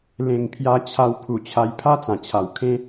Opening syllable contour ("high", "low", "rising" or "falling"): low